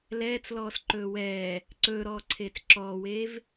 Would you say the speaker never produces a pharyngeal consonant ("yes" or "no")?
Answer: yes